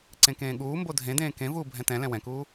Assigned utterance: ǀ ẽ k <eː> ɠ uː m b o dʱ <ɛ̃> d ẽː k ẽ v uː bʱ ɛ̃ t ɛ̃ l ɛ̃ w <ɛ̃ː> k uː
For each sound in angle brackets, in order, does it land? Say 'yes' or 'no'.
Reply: no, no, no

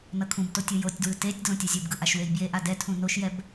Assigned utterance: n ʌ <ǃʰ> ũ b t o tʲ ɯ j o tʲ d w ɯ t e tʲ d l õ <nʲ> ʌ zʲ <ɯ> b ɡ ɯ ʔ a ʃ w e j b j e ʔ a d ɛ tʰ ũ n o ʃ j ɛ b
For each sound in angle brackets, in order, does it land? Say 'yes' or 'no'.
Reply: no, no, no

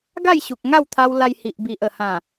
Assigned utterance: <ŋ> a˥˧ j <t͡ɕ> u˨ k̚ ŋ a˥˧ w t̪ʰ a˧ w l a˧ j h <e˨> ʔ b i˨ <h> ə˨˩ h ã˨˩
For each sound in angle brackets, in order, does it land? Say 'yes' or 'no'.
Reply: no, no, no, no

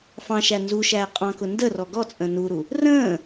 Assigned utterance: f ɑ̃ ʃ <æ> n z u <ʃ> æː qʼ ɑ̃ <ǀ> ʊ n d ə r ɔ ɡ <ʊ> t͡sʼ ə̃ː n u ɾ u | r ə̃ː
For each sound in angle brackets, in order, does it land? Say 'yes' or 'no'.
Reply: yes, yes, no, no

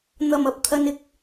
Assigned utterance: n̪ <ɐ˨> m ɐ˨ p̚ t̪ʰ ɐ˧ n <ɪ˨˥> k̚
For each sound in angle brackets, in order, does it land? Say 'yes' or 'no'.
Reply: yes, yes

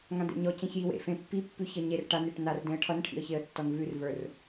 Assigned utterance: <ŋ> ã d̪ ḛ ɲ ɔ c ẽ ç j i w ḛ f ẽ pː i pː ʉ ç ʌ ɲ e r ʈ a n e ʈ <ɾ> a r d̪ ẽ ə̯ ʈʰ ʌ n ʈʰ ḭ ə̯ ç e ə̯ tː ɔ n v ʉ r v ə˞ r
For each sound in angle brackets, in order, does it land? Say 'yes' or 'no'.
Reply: yes, no

